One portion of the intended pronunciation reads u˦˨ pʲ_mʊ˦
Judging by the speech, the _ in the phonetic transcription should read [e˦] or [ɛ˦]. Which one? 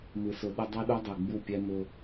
ɛ˦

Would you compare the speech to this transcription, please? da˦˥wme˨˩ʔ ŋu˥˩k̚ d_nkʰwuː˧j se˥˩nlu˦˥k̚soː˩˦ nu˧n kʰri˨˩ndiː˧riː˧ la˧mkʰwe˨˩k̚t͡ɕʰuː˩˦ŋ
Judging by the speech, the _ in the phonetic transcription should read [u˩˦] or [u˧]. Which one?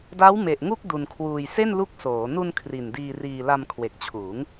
u˧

